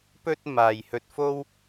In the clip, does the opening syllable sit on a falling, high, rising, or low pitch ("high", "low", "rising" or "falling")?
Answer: high